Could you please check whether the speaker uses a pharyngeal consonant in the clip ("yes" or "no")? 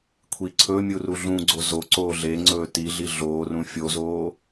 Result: no